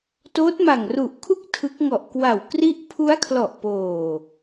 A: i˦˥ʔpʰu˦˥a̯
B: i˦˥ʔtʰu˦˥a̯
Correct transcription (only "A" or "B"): A